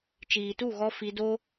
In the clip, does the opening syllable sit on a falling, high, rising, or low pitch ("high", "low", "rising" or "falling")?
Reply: low